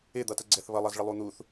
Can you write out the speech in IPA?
ɪ d̪ ʌ t ə ɡ͡ǀ ɛ θ β ʌ lˠ ʌ z ɭ ə lˠ u n̪ u θ

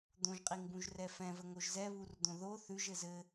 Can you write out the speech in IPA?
d̪ õ ʒ qʼ i ŋ b ũ ʒ r ɛ f ɛ̃ v ə ŋ o ʒ z ɛ β u r d̪ õ ð o θ ʉ ʒ ɘ z ɘ

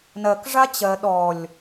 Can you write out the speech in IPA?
n ɜ k ʐ a t͡ɕ ɜ ɗ ɔ lʲ

